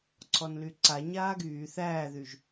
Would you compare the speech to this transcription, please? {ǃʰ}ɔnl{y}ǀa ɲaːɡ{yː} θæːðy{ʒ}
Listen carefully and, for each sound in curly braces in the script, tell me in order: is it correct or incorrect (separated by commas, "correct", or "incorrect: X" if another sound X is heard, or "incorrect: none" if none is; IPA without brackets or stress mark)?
incorrect: ǀʰ, correct, correct, correct